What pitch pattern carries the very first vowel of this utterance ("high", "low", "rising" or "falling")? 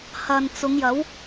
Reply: low